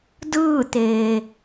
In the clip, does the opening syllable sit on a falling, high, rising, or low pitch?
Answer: falling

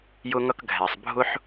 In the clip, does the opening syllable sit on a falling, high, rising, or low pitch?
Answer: high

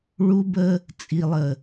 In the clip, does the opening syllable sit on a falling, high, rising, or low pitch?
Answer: high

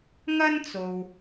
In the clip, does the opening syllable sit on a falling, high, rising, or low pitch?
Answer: high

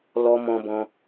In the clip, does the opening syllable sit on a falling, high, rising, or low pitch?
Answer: high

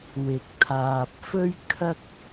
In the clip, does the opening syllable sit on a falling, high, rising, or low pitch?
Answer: low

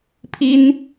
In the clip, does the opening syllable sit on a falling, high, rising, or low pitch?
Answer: high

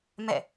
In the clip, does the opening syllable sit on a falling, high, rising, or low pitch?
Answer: falling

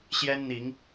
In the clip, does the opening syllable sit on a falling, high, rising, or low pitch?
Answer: high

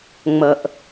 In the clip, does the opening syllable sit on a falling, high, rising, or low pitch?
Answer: low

